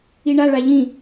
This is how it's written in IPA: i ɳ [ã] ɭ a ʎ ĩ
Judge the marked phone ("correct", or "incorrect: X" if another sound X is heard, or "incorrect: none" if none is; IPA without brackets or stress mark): incorrect: a